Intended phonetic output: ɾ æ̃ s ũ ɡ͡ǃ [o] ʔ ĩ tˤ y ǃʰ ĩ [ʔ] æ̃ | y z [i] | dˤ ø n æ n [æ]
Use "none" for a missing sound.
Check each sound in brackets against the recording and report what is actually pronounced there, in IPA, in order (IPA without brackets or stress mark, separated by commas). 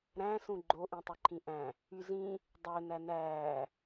o, ʔ, ĩ, æː